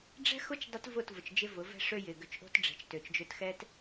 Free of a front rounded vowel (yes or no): no